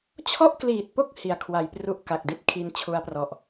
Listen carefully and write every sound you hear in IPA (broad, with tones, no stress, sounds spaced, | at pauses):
t͡ɕʰ ɔ˥˩ ʔ k l iː˨˩ t̚ p o˥˩ k̚ h i˨˩ a̯ kʰ w a˨˩ j p r u˥˩ ʔ k a˨˩ k̚ d i˦˥ t̚ kʰ i˧ n t͡ɕʰ u˦˥ a̯ p r ɔ˨˩ ʔ